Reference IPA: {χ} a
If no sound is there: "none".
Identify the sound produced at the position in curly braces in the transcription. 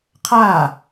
qʰ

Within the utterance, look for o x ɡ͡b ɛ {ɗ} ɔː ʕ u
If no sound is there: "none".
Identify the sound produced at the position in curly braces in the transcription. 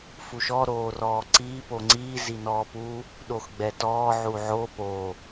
t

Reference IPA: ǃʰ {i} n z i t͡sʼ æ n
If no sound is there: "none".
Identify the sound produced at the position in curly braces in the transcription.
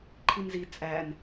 i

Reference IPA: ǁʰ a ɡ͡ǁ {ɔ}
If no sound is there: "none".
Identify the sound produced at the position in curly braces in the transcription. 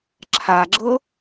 ɤ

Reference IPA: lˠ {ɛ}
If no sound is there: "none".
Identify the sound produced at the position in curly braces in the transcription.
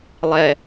ɛ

